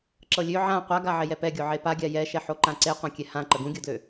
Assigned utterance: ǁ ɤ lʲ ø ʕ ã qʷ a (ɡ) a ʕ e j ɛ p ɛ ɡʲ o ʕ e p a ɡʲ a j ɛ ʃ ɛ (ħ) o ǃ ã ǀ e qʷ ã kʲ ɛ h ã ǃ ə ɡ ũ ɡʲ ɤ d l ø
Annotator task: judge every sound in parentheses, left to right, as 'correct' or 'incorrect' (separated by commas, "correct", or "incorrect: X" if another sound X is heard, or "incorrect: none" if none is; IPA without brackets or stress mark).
correct, correct